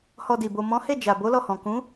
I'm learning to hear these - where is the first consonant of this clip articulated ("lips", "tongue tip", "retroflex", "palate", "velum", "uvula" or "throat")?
throat